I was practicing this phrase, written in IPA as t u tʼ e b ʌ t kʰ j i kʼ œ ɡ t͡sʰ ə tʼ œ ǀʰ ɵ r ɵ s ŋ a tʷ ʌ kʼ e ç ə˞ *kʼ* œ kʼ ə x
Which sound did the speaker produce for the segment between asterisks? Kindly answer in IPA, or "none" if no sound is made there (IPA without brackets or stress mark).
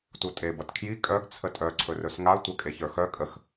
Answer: x